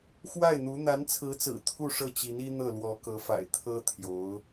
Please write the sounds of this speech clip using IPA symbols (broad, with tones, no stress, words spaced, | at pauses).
xwa˥˩ɪ̯n̪u˧˥ n̪a˧˥nt͡sʰɹ̩˧˥t͡sɹ̩˨˩ t̪ʰu˥˧ʂɤ˥˩t͡ɕi˧˥ni˥ n̪ɤ˥˩lwɔ˧˥kɤ˧˥fa̰˨˩ɪ̯ t̪ʰɤ˥t̪ʰjo˧˥ʊ̯